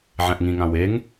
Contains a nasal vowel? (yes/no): yes